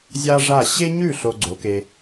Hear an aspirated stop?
no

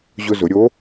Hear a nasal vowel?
no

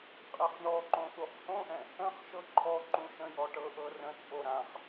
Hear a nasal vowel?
yes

